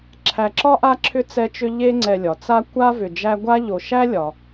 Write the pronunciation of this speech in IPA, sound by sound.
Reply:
ǁʰ æ˨ ǁ ɒ˥ ʔ a˦ ǁʰ ʏ˦ t͡s ɛ˦ t͡ʃ ʏ˦ ʎ e˦ ŋ͡ǀ ɛ˨ lʲ ɒ˩ t͡s a˦ kʷ a˥ v ʏ˨ d͡ʒ æ˦ ɡʷ a˥ ʎ o˨ ʃ æ˥ lʲ ɒ˩

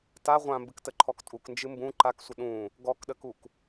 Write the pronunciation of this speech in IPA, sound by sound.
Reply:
t a ʁʷ ã m b ɨ k t ə ǃʰ ɔ k tʼ u k n d͡ʒ ɨ m b ũ ǃ a k sʷ ə ɗ ũ | ɡ ɔ k ɗ ə k u k

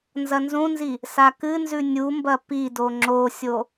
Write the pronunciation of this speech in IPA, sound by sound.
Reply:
n z ɐ n z ũ n z i | s a k ɨ n z ʉ nʲ u m b ɐ p i d o ŋ͡ǁ o sʲ o

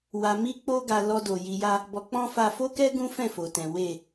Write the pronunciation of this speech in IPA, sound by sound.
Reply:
w a˧ m i˦ k͡p o˦ ɡ a˧ l ɔ˧ d o˨ j i˧ j a˦ | b ɔ˧ k͡p ɔ̃˦ f a˧ f o˦ k ɛ˦ ɡ ũ˦ f ɛ̃˦˨ f o˨ t ɛ̃˨ w e˨

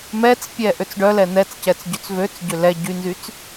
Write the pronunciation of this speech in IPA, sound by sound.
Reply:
m ɛ t͡s pʲ ɛ ʔ ø t͡s ɖ œ l ɛ n̪ ɛ t͡s c ɛ t͡s ɟ ø t͡s v ø t͡s ɟ ø l ɛ ɟ y n z y t͡s

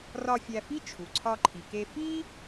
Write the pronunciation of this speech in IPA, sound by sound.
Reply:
r ɒ˧ fʲ æ˧ f i˥ t͡ʃʰ u˩ ǀʰ ɒ˧ ǃʰ i˩ k e˧ f i˥

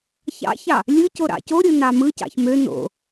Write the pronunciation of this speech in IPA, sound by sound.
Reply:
ç ɑ̰ ç ɑ | lʲ ɯ c o ɾ ɑ̰ c o ɾʲ ɯ n ɑ m ɯ c ɑ̰ ç m ø n o̰

